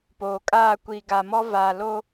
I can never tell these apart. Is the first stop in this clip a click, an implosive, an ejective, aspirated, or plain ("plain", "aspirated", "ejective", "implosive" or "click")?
plain